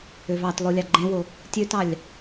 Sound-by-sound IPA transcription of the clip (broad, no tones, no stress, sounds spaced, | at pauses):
ø v ɑ t lˠ o lʲ ɑ ɡ͡ǃ ẽ w o | tʲ ø t ɑ lʲ